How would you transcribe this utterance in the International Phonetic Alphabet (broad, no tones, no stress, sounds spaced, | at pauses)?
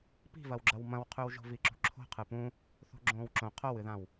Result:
p i̤ v ɐ w ɡ͡ǁ ɐ w m ɐ̃ w qʰ ʉ w ʒ o̤ v i ǁ ṳ ǁʰ o̤ qʰ ɨ p ũ | θ o̤ ɡ͡ǁ õː w ǁ õ qʰ o w ɨ ð ã w